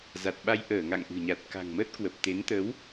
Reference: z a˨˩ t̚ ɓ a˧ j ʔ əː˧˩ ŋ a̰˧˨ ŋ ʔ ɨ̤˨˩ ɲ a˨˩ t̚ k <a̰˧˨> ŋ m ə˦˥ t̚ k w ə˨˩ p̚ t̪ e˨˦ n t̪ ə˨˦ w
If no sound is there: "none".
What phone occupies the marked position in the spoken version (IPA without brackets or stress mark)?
a̤˨˩